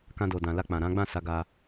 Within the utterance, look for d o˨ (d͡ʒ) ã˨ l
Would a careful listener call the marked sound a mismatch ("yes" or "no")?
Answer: yes